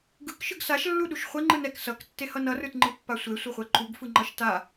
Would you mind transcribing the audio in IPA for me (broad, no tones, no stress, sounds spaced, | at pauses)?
ɡ ɯ k ʃ ɯ ɡ s a ʃ lː u ɗ u ʃ χʷ e ŋ͡ǃ ɯ n ɛ k s ʌ k tː e h ʌ n ʌ r ɯ t ŋ͡ǃ ɯ pː a sʷ e sʷ ʌ χʷ ɛ ǃ u ɡ f ɯ ŋ͡ǃ ʌ ʃ t a